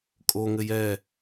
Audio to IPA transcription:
kʼoŋɘj ɛ

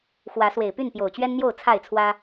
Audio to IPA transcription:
xwä˨˦swe˨˩ɪ̯py˥˨n pjo˨˩ʊ̯t͡ɕɥɛ˦nn̪jo˥˨ʊ̯ t͡sʰa˥˨ɪ̯t͡sʰwä˦

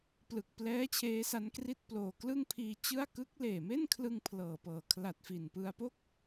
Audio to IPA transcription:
plɯ˨˩k̚plɛː˦˥ t͡ɕʰeː˦˥sa˦˥nkri˥˩t̚ploː˨˩ klɯ˥˩ŋpʰiː˧t͡ɕɯ˥˩a̯ kɯ˦˥k̚leː˨˩me˥˩nkʰlɯ˧ŋ pʰlɤː˨˩pɤː˨˩ kʰla˨˩t̚fi˨˩npɯ˧a̯ po˥˩k̚

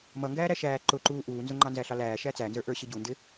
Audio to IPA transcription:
mʌŋɡæː ɾæʃæː ǃʊǃuː ʔuːnzʊŋ͡ǃɑ nzæɬɑlæːʃæ t͡sænzə˞ ʔə˞ɕɪɟundɪ

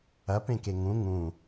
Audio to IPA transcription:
ɐpẽke ŋũ ŋũ

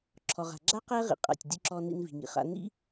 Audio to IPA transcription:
ǁʰɔ˩ʁa̤˩ ɡ͡ǁa˥ qɛ˥ʁḭ˩ qʼa̰˩tʲdʲʊ˧ ǁɔ˧nḭ˧n vi̤˩ŋḭ˩χa̰˧nḭ˥

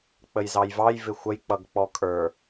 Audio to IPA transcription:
k͡pəjzɑjvɑj vɪxʷəj k͡pʌɡk͡pɔkʼə˞

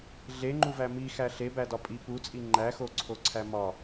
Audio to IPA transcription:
ɮeŋ͡ǃuvæ mixæ ɬebædɒ pʼi put͡sʼi ŋ͡ǃæxoǀʰoǀʰæ mɒ

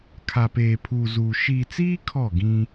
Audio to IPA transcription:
kʰa˨peː˨pʰuː˨zuː˨ ʃiː˨t͡siː˦ kʰɔ˦˨ɡĩ˦

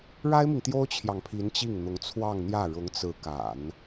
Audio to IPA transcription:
ɻa˥ɪ̯mi˨ŋ t̪jo˥ʊ̯t͡ɕʰjɑ˨ŋpʰi˧˥n t͡ɕi˥˩ŋn̪ʊ˧˥ŋt͡sʰwɑ˥˧ŋn̪jä˥˩ ɻʊ˧˥ŋt͡sɹ̩˧˥ka̰˨˩˦n

